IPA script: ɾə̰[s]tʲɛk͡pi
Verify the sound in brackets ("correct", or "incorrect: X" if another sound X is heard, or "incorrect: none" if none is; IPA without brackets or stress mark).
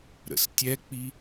correct